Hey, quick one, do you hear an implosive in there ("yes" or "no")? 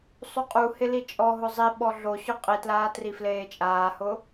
yes